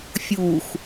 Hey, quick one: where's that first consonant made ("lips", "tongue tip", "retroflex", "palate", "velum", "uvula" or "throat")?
lips